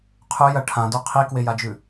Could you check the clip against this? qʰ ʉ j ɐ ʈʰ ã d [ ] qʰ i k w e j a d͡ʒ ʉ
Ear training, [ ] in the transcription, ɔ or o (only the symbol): o